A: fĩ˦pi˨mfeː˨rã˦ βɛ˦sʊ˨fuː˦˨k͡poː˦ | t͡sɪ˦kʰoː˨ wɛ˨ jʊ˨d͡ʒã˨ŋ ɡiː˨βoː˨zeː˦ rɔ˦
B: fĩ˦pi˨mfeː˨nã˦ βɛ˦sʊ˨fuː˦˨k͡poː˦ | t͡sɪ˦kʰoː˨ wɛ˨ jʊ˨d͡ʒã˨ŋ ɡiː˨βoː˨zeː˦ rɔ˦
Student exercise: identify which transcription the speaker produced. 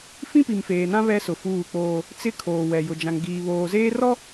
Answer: B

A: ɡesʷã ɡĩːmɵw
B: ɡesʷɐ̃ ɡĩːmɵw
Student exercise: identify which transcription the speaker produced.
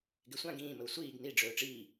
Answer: A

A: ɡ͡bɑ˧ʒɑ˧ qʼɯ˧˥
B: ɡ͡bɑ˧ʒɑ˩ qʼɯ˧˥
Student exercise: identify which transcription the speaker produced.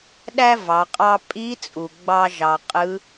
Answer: B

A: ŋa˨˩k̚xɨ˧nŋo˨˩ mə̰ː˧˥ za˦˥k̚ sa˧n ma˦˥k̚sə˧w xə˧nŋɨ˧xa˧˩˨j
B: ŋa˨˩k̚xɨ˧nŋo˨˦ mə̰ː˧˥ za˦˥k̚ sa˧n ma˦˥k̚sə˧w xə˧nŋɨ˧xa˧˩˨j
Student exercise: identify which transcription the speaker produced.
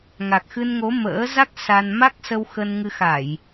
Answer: B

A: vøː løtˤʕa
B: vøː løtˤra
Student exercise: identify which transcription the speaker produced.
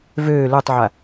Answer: A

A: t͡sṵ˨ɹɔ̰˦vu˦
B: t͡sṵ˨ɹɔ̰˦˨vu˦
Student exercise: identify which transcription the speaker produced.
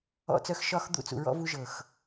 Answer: A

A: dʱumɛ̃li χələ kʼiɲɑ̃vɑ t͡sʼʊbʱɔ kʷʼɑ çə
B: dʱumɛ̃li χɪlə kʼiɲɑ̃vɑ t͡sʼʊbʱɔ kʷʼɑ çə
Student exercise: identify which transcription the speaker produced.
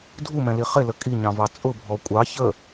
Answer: B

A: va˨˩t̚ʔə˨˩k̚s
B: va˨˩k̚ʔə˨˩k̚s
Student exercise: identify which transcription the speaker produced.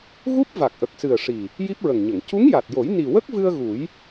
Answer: B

